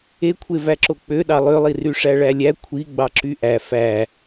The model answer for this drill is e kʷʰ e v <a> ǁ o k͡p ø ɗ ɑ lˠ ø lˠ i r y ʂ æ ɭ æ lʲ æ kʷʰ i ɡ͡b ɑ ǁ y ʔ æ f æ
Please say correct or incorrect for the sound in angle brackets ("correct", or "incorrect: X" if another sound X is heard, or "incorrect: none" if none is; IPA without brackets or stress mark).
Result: incorrect: æ